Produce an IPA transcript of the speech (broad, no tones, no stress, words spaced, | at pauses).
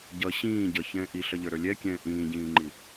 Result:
ɟʌ ɕĩː ɟʌçɛ̃ː ʔiɬʌʎə˞ɾə˞ lʲɛkʲɛ̃ː ʔĩːɟĩːŋ͡ǃi